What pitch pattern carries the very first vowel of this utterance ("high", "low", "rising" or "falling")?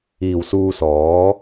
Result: low